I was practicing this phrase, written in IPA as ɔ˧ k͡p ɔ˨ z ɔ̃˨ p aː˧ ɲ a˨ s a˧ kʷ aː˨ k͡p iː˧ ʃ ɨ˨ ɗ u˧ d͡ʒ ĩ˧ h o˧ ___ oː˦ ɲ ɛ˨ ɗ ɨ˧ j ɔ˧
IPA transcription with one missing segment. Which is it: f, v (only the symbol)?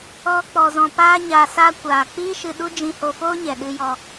f